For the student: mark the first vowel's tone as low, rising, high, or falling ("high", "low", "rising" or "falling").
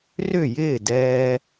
falling